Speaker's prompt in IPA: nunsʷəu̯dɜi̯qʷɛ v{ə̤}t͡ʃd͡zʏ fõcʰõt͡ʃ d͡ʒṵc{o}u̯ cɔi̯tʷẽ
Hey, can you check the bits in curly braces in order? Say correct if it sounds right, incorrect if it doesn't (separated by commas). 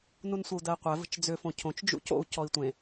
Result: correct, incorrect